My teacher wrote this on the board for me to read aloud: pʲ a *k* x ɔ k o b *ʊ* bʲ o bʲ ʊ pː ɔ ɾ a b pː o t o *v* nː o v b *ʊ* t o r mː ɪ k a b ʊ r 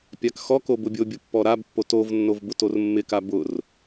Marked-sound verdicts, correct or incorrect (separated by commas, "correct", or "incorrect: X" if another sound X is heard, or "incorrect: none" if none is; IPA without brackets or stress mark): correct, correct, correct, correct